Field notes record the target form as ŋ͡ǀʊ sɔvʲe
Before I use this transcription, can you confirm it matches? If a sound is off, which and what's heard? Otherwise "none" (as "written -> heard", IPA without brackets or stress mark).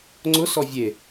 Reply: none